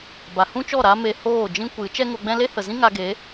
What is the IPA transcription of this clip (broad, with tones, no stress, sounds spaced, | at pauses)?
b a˨ h ũ˦ t͡ʃ ɔ˦˨ ɾ a˦ m e˧ h oː˦˨ d͡ʒ ĩ˦ kʷ ɨ˨˦ t͡ʃ ɛ˦ ŋ o˧ ɡ͡b ɛ̃˦ l e˦ h ə˨ z ĩ˦ ŋ a˧ ɡ e˨˦